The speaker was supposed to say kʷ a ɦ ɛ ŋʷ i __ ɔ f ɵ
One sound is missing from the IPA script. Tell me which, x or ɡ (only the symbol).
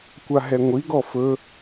ɡ